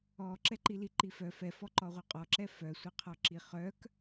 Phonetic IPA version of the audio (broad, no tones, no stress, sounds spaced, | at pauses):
ɔ ǁ ɛ ǃ i l i ǃ i f œ f ɛ f ɔ ǃ ɔ ʁʷ œ qʼ ɔ ǁ ɛ f œ sʷ e qʰ ɔ ǁ i χ œ k